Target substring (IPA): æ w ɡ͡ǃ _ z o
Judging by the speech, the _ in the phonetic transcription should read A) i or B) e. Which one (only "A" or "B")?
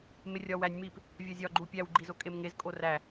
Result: A